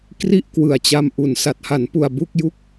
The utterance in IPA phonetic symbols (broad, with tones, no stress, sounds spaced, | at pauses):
k r i˥˩ ʔ k w ɯ˨˩ a̯ t͡ɕ a˧ m ʔ u˨˩ n s a˨˩ t̚ h a˩˦ n p u˨˩ a̯ b u˥˩ k̚ j u˥˩ k̚